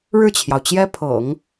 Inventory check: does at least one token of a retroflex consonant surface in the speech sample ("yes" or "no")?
yes